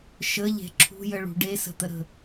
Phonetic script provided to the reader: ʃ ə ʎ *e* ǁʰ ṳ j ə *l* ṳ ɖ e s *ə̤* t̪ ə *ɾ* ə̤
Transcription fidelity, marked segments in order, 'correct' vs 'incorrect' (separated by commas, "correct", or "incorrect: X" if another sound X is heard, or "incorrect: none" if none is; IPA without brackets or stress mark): incorrect: e̤, incorrect: ɭ, correct, correct